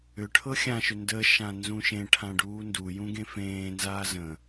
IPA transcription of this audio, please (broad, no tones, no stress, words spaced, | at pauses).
ʏ ʈʰɤxʲãʃʏ ndə ʃãnzũʃẽʈʰã ɖuːndujũ ɡẽfẽːnzaː zə̃